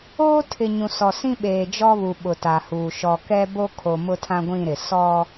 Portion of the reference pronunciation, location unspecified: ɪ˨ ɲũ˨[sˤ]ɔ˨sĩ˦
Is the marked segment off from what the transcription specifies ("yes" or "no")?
yes